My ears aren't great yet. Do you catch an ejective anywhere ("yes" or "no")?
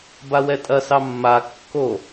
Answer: yes